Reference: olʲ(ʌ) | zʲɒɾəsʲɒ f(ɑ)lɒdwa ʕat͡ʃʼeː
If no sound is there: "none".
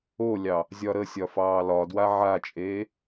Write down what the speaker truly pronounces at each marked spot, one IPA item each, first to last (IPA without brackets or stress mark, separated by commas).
ɑ, ɑː